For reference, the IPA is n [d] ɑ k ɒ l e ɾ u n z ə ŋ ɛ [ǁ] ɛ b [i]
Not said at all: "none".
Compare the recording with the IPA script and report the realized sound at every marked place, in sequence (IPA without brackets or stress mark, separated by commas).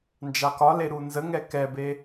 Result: d͡ʒ, k, e